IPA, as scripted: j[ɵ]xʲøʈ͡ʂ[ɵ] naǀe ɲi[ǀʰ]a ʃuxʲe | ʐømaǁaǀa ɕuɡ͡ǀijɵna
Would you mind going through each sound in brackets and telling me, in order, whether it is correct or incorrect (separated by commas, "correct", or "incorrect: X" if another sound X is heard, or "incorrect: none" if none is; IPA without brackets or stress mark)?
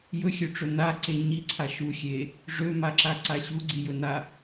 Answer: correct, correct, correct